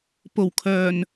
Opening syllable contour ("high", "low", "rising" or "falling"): low